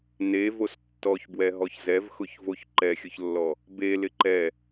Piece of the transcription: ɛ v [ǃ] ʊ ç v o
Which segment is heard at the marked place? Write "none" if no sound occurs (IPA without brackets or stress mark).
x